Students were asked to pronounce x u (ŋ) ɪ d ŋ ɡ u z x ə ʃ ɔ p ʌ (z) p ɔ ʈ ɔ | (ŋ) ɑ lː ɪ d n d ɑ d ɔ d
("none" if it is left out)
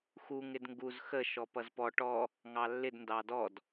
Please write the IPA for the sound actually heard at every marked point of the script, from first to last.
ŋ, z, ŋ

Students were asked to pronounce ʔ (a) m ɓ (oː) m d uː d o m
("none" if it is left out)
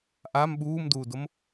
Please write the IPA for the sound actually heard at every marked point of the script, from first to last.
a, uː

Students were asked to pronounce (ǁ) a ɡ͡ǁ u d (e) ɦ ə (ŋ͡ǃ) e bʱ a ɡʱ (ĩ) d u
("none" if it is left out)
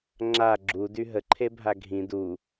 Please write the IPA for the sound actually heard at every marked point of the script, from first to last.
ŋ͡ǁ, y, ǃʰ, ĩ

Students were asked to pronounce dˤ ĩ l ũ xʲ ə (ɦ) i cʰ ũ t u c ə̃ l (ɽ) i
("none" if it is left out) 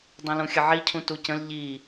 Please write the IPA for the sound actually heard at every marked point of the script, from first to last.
ʕ, ʎ

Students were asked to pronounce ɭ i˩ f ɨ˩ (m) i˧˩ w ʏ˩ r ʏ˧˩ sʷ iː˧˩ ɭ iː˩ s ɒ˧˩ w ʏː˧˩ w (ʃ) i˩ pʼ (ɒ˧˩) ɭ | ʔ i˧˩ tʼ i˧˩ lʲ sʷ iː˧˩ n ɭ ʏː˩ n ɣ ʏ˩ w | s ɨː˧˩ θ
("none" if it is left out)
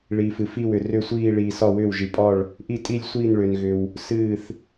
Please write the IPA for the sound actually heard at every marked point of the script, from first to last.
f, ʒ, ɒ˧˩

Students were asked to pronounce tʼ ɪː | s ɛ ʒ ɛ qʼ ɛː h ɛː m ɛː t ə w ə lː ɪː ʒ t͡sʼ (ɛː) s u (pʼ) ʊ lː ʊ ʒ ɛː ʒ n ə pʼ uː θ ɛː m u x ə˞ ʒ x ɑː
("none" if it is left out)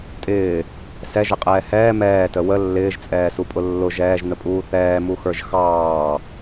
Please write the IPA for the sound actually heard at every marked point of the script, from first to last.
ɛː, pʼ

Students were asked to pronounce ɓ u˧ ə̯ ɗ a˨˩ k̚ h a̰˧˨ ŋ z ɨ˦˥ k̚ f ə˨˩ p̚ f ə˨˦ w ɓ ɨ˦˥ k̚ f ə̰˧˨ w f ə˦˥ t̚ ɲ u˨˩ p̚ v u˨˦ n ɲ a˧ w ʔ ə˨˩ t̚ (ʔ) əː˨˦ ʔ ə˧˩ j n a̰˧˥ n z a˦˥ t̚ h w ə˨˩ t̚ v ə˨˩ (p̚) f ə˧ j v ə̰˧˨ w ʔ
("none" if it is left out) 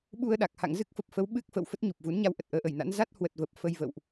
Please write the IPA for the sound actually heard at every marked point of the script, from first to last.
ʔ, p̚

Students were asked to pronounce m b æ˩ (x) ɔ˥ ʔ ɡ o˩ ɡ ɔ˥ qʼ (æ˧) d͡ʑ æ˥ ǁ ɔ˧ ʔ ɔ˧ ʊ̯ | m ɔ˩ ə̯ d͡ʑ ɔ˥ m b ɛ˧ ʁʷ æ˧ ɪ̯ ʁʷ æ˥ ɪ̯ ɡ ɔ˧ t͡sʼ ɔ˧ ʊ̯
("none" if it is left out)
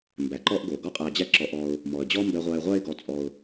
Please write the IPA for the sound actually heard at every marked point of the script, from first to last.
ǃ, æ˧

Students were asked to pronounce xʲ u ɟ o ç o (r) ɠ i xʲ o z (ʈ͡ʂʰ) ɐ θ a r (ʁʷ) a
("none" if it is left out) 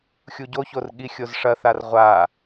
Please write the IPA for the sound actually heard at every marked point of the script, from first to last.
r, ʂ, ʁʷ

